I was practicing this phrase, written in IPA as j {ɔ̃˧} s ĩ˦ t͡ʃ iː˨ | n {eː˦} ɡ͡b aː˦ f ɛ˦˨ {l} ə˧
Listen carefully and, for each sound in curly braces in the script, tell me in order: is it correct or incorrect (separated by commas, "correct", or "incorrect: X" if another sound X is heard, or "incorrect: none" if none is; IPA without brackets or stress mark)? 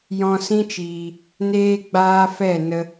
correct, correct, incorrect: n